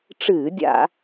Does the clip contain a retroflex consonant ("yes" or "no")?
yes